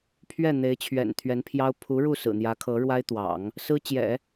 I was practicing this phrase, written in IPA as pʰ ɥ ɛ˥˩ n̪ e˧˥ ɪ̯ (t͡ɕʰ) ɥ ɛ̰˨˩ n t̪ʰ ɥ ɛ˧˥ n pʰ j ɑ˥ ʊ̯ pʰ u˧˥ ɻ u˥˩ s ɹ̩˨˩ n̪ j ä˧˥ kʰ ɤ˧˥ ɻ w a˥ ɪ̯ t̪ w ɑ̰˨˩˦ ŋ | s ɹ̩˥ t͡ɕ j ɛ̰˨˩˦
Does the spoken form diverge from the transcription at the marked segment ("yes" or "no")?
no